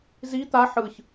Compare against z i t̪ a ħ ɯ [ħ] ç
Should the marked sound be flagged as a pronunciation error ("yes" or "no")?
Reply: yes